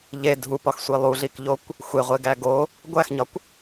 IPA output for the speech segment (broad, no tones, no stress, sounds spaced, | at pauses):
ʎ e dʱ u p ɒ x sʷ i lˠ u ɮ i k ʎ o kʷ | xʷ e ʁʷ e ɡ æ ɡ o | ɡʷ æ x ɲ ɒ kʷ